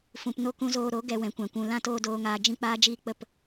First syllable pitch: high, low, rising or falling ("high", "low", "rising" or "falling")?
low